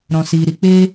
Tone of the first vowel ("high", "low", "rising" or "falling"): low